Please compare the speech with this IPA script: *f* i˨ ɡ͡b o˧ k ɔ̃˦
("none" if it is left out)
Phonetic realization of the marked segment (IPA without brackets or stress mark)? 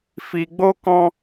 f